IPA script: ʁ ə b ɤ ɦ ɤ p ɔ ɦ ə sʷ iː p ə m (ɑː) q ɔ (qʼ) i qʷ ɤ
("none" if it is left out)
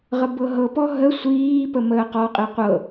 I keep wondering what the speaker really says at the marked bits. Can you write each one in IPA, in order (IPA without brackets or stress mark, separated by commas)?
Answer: əː, qʼ